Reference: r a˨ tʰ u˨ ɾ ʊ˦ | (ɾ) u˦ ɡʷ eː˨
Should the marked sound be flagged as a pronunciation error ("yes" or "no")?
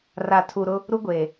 no